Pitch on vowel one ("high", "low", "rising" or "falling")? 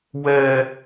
high